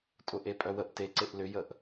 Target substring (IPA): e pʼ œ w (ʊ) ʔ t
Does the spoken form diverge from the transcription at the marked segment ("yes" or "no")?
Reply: yes